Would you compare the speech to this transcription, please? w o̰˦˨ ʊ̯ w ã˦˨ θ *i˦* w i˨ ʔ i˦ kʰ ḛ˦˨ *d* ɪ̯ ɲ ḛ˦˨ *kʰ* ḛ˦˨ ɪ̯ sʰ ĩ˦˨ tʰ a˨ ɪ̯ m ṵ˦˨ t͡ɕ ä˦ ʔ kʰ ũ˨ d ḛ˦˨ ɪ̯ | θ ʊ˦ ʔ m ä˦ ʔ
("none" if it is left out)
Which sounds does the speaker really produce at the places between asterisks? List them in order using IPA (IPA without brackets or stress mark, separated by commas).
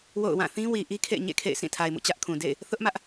ĩ˦, none, kʰ